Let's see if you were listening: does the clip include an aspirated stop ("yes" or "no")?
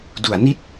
no